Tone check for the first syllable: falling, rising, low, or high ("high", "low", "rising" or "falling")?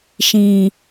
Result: low